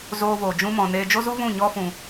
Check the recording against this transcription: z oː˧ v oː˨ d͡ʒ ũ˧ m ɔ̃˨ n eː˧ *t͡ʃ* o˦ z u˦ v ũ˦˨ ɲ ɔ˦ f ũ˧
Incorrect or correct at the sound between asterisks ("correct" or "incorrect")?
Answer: incorrect